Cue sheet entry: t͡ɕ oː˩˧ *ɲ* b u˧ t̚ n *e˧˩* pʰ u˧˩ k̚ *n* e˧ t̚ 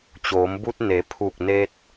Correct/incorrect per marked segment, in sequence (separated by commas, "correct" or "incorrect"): incorrect, incorrect, correct